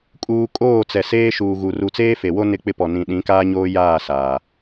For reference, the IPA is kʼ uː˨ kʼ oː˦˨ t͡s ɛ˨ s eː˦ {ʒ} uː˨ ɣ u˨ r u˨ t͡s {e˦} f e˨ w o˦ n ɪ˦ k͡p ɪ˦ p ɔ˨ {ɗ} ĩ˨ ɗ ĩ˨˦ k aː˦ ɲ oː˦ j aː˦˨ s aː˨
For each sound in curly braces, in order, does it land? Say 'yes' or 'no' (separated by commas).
no, no, no